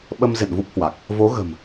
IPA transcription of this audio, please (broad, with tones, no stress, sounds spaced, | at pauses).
ɓ ə˧ m z ḛ˧˨ n v u˦˥ p̚ h w a˨˩ k̚ | v o˨˦ ɣ ə̤˨˩ m